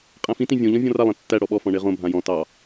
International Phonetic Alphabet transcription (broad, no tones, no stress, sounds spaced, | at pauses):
qʼ æ̃ f ĩ t ĩ vʲ õ ʎ ɔ̃ vʲ ɔ̃ r a lˠ ẽ tː æ ɽ ɔ ɓ ɔ f ɔ̃ ɳ e ʁ õ bʱ ã j ɔ̃ t ɑ